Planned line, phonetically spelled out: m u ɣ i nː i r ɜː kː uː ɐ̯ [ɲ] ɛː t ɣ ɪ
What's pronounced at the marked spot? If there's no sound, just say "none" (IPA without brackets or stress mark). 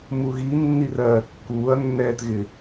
nː